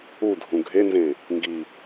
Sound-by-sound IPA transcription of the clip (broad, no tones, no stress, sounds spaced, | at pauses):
u dʱ ũ ɡʱ e n z ẽ | ŋ ɡ i